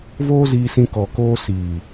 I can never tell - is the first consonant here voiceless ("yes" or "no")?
no